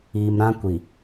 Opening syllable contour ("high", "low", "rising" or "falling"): low